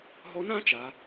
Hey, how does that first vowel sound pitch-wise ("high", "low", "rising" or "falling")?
rising